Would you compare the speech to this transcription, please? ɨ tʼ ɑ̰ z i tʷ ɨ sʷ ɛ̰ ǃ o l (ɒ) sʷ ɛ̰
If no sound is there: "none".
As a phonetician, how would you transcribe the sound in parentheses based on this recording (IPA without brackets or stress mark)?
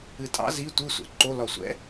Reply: ɒ